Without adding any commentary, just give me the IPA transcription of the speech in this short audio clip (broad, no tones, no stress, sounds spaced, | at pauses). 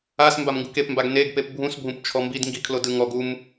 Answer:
a s m b a m ŋ ɡ u k e p m b a ɡ n e ɡ p e p bʱ ũ s bʱ ũ p t͡ʃʰ ɔ m b i d ŋ ɡ i kʰ l o d ɯ ŋ ɔ ɡ u m